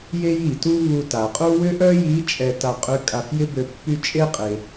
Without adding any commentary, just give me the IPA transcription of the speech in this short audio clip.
je˥ji˩tu˥ βu˧ta˩qʼu˥ wʏ˥ʔœ˥ji˧˥ t͡ʃʼɛ˧ta˧ qʼʏ˧˥ kʼa˧fjɪ˥bø˧ pːy˥ t͡ʃʼe˥qʼe˩

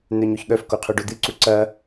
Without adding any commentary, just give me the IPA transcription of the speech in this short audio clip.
n̪œɲoçɠœf koqʰœɖod̪ɨ ǀuǀɐ

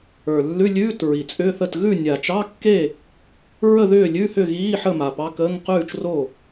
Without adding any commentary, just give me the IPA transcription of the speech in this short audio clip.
ə˞˨˩lːʉ˧˥˧lʲʉː˧˥˧t ɹi˨˩t͡sʼʏː˧˥˧θə˥˨t ɣʉ˥˨ nʲa˨˩t͡ʃɑ˧˥˧kːe˥˨ | ɹə˥˨ðʏː˥˨lʲʉ˧˥˧hʏ˥˨ ɣiː˧˥˧ħə˥˨ ma˨˩pɑ˧˥˧kəː˧˥˧ŋ qʉː˥˨t͡ʃro˥˨

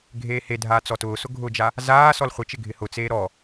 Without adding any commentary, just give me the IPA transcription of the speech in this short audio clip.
ɡʱeːhedʱaː t͡sɔtʊːsʊ ɡʱʊd͡ʒa | zaː sɔlχʷɪt͡ʃɪ ɡʱɪhʊt͡seː ɾɔ

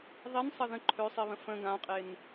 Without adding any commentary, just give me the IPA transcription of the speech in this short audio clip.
ðˤinsˤə ðə̃ ǃʰøsˤiβə̃ fə̃ ɡãqʼen

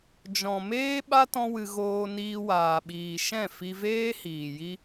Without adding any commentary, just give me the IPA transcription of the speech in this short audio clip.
d͡ʒɔ̃˨ meː˦ɓa˦ tɔ̃˦wɨ˧ ɣoː˧niː˧waː˨ɓiː˨ ʃɛ̃˦˨fi˧veː˦ hiː˨ji˦

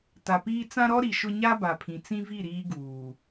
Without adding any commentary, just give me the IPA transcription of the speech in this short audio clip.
ta˨piː˦ t͡sã˦ɾɔ˦ ɾi˨ʃʊ˦ ɲa˦ba˨pʰĩ˨ t͡sĩ˦vi˦˨ ɾiː˦ɡuː˨

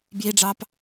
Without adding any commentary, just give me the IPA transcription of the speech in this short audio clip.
bjiɖ͡ʐɑp

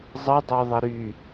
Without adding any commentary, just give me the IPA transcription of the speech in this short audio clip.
zˤədˤoðˤə ɾy

